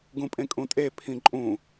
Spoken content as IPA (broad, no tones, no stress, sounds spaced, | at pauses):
ɡ ũ pʼ ẽ kʼ ũ tʼ e pʰ ĩ ǃʼ ũ